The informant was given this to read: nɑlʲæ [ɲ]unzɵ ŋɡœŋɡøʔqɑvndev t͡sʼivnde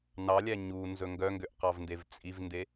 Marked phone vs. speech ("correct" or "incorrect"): correct